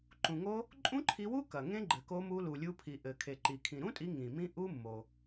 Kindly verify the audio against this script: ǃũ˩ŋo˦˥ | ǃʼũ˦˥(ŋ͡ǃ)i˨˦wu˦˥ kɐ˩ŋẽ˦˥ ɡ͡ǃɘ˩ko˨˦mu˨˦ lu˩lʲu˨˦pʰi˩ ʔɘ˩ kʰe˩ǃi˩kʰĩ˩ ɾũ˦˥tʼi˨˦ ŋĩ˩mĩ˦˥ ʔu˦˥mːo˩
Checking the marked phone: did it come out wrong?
yes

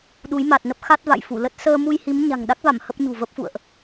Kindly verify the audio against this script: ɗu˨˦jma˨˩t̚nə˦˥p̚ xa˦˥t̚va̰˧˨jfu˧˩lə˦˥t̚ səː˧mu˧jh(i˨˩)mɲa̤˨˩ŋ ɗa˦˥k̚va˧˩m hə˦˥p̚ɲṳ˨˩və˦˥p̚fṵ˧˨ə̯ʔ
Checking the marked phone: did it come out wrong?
yes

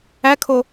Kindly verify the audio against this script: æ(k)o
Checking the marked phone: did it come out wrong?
yes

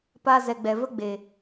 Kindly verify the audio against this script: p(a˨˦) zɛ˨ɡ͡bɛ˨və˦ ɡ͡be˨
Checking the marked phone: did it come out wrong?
yes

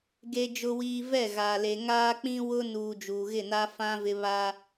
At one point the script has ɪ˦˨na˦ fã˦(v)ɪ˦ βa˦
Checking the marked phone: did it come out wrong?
no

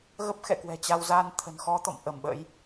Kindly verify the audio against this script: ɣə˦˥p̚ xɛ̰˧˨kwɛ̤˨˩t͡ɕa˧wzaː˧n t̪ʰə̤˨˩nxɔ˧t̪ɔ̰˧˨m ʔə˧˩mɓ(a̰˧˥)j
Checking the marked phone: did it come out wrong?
yes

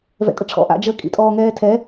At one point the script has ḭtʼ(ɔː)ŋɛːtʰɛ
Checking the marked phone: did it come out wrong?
no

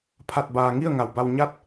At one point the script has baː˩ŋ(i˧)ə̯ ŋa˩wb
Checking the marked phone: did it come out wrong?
yes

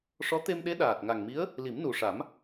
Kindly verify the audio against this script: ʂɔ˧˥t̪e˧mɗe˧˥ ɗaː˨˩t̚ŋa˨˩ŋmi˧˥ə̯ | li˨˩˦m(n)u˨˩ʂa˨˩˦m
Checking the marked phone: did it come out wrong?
no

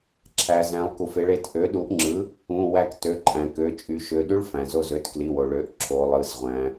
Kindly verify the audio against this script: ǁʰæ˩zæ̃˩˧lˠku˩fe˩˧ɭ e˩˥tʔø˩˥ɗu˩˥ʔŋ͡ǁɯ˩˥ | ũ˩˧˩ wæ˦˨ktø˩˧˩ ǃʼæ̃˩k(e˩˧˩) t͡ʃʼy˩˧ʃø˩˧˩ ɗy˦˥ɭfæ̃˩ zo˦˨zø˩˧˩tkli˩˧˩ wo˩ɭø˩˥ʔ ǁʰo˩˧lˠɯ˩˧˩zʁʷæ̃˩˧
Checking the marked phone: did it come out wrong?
yes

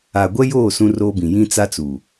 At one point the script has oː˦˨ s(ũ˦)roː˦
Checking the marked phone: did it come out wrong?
no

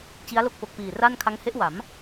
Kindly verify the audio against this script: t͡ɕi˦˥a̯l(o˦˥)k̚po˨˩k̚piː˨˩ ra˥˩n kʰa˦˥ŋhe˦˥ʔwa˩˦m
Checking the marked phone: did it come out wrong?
yes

